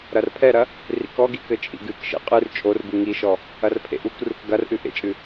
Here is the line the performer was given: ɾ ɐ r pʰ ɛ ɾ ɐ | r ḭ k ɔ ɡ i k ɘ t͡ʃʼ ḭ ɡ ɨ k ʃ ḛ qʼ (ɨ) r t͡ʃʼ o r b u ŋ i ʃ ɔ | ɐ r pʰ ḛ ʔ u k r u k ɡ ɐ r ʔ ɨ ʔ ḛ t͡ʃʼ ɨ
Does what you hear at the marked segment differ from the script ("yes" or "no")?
no